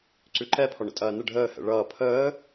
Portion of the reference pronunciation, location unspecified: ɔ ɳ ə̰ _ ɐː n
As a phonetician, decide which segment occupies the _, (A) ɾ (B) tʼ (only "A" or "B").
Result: B